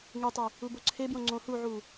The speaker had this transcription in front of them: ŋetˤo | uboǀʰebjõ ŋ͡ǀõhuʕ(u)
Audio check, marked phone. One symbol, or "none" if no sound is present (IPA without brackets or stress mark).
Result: u